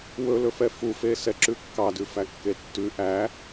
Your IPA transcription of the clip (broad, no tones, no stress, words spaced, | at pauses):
wɵlɵfɛ fufesɛǁʉ kːɑdʉfækːe tːʉ ʔæ